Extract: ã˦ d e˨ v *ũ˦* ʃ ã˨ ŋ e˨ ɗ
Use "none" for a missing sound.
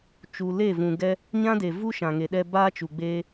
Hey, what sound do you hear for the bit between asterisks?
u˦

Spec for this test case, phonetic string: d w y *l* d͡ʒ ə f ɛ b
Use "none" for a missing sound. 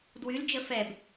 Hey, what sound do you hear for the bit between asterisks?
l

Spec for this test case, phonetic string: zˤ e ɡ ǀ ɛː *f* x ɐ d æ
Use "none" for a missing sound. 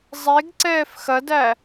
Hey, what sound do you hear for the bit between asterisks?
f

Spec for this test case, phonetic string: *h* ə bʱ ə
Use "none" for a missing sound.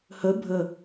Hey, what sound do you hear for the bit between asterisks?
h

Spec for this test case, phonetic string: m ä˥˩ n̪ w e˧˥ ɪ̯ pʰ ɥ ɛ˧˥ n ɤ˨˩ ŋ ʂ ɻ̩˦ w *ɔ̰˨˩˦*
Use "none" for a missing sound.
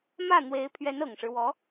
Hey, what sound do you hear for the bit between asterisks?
ɔ˧˥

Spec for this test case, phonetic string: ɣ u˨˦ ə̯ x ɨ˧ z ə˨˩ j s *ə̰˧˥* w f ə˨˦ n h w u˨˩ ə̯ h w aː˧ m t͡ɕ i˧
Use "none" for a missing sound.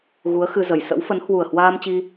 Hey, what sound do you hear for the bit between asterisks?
ə̰˧˥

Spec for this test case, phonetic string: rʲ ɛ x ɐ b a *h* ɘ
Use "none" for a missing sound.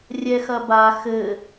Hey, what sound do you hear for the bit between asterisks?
x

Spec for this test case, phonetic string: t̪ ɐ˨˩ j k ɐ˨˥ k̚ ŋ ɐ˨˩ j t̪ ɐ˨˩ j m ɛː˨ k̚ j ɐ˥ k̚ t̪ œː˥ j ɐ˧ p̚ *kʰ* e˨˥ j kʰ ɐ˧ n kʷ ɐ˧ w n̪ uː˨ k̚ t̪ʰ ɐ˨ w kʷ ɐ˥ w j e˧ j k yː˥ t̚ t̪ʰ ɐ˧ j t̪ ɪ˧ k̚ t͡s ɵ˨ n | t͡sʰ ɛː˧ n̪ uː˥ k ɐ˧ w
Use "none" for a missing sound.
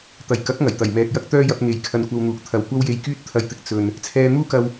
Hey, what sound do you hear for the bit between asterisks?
ŋ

